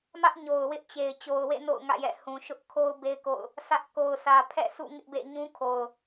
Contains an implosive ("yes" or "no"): no